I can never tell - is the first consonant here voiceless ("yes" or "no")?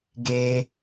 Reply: no